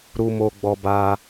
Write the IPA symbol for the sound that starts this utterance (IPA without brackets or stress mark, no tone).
ɾ